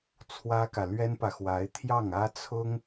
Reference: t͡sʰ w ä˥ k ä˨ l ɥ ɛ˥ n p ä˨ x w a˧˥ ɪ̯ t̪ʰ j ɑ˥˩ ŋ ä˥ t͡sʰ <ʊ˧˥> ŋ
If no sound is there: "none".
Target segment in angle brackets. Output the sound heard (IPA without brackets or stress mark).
ʊ˥